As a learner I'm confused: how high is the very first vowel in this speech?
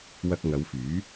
low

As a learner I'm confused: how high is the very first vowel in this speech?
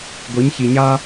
high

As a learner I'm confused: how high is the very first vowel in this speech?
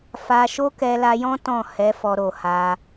low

